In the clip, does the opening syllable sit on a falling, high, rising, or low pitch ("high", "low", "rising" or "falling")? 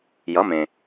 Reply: rising